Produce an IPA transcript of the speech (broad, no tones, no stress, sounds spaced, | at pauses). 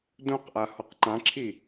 d õ q ʔ a h ɔ q ǃ ã ǁʰ i